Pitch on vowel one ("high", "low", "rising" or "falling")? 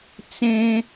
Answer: high